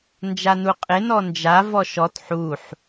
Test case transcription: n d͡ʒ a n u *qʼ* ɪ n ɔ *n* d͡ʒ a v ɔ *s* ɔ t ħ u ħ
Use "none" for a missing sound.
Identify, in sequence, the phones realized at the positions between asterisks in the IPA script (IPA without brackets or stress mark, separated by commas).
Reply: qʼ, n, ʃ